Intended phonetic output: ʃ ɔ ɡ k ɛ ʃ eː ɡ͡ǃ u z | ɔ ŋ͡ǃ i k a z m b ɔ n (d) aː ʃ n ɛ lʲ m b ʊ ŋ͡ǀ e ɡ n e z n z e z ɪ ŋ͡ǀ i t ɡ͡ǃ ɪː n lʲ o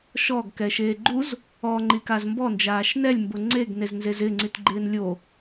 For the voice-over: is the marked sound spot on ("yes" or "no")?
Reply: no